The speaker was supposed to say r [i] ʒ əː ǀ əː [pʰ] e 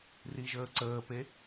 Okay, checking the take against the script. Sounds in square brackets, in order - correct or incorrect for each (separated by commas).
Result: correct, incorrect